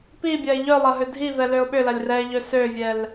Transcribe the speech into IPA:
pibʲaɪ̯ ʎœ lˠɐɦødʱivɛ løʊ̯ɓʏlɐlʲ rɛɪ̯ʎø søvʲɛl

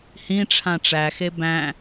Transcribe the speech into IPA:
hĩʈ͡ʂʰã ʈ͡ʂæxe bæ̃

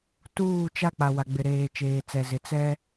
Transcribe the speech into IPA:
tuː˦˨t͡ʃa˦k͡pa˨ wa˨ɡ͡bɪ˨ɾeː˨ t͡ʃeː˨t͡sɛ˨zɪ˨ t͡sɛ˦

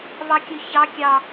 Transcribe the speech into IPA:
βɑkʲɵçɑ kʲɑ

